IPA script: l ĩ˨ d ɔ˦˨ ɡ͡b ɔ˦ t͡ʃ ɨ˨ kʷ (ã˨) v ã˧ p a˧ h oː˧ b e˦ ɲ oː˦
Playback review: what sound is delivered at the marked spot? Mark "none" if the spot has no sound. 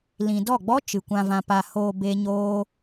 ã˧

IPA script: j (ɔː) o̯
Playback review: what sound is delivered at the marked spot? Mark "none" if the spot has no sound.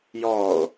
ɔː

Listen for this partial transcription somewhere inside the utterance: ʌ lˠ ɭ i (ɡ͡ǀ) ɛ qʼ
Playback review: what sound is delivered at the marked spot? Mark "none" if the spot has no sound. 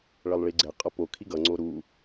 ɡ͡ǀ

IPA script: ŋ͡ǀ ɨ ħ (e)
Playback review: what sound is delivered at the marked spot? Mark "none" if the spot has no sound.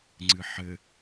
ɘ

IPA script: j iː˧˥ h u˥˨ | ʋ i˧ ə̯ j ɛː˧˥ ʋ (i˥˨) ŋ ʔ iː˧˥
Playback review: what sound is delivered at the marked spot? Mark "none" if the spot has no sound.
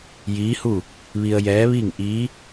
i˥˨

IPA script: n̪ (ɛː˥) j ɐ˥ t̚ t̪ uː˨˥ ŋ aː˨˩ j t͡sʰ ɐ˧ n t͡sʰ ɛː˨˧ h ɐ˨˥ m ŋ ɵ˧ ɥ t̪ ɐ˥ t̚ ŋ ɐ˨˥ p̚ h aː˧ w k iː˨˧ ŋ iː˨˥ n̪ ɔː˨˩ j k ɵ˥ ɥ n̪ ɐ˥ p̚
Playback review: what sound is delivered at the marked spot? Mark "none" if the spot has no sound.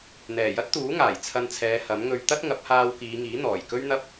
ɛː˨˩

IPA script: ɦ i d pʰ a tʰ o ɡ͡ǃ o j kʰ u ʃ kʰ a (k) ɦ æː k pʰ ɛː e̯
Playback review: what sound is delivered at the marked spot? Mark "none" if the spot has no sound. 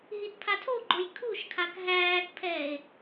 k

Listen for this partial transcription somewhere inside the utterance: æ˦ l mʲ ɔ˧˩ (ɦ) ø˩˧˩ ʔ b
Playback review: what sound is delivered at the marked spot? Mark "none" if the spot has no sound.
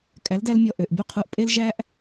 ʔ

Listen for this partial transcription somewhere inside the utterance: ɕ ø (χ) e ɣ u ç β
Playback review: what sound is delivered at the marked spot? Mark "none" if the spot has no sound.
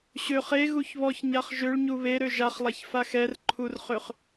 χ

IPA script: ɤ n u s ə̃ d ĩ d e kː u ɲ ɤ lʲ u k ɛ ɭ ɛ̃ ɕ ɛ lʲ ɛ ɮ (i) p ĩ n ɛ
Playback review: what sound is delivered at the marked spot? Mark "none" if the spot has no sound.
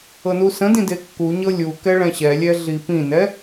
i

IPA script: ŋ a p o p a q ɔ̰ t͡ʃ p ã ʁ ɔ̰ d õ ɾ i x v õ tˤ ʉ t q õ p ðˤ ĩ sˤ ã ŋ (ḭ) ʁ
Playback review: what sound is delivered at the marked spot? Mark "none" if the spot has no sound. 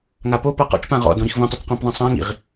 ḭ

